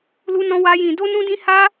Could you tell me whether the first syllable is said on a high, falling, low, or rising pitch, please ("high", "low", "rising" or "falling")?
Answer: high